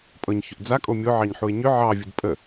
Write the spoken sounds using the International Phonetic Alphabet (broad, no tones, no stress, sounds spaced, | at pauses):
pʼ ɤ ɲ ç ʏ ʔ d͡z a kʼ o mʲ o ʕ ɑ ɲ ħ u e̯ ɲ ʏ ʕ ɑ vʲ u d pʼ ə